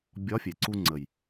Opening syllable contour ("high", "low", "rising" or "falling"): rising